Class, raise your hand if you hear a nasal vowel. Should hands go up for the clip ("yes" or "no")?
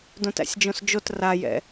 yes